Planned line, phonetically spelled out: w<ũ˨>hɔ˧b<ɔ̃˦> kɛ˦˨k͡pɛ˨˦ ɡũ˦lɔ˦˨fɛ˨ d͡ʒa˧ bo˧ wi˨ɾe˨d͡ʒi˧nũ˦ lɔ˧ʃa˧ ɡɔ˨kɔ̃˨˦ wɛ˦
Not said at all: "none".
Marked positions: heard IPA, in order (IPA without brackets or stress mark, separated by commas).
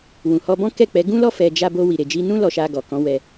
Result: ũ˨, ɔ̃˦